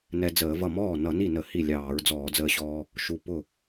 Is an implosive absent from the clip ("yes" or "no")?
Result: yes